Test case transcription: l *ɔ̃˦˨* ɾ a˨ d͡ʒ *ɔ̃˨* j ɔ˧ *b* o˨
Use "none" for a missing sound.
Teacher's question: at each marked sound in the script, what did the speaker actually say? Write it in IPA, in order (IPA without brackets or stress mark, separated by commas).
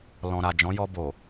ɔ̃˨, ɔ̃˨˦, b